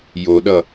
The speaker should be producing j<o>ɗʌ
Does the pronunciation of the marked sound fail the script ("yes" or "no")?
no